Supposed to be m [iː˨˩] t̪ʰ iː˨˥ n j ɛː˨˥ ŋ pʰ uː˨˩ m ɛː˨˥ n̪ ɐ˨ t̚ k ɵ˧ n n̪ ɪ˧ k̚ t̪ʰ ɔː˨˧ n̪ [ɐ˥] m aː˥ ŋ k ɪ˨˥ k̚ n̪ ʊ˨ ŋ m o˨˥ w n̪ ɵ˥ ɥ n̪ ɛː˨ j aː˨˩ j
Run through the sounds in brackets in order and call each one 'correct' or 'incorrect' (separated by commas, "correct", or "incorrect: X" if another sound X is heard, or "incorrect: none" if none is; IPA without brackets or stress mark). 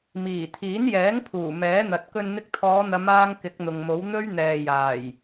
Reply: correct, incorrect: ɐ˨˧